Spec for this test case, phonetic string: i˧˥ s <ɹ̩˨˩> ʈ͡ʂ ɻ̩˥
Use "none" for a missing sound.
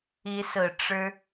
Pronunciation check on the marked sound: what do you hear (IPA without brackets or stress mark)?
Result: ɹ̩˨˩